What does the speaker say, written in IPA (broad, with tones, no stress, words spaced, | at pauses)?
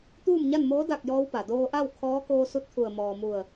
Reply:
t̪uː˥˨mɲa˥˨nmoː˧˥ da˥˨k̚jɔː˧˥wpa˩ doː˧ʔa˥˨w kʰɔː˧˥ koː˧su˧t̚ t̪ʰu˧˩ə̯ mɔː˩ mu˧˩ə̯